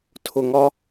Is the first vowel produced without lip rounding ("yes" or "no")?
no